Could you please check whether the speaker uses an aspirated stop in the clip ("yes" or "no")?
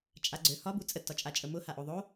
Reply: no